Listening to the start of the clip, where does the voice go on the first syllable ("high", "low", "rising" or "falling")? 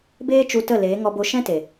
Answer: high